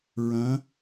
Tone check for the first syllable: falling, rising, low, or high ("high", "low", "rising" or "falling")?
rising